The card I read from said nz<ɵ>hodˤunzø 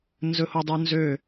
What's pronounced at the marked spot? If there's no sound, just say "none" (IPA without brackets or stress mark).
ɵ